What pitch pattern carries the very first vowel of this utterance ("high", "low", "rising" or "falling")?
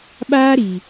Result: high